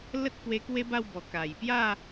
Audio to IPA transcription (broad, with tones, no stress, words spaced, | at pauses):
lə˦t̚kwe˧ kwe˦ba˥˧wbɔ˨˩ ka˨˩jpja˥˧